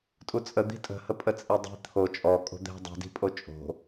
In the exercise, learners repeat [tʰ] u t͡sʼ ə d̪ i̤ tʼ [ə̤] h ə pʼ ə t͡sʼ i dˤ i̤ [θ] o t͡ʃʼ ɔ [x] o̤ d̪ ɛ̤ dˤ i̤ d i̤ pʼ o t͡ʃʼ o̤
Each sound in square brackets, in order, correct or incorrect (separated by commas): incorrect, correct, incorrect, incorrect